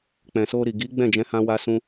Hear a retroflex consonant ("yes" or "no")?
no